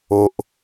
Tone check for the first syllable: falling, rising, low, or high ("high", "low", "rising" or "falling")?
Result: low